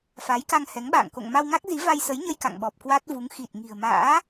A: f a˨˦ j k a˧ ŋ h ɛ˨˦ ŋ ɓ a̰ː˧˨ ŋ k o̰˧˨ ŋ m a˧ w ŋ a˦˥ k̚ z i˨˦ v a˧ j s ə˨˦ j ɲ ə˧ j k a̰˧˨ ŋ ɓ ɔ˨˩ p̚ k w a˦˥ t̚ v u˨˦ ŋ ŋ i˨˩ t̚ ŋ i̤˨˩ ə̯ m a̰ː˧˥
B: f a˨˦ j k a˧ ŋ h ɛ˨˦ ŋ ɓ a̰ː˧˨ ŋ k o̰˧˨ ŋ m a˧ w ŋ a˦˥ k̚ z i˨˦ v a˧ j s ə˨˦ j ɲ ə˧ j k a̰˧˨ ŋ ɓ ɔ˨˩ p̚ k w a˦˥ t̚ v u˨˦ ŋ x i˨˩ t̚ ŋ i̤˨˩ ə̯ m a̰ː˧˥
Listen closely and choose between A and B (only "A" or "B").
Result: B